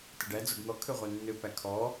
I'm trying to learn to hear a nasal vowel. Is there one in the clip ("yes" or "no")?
no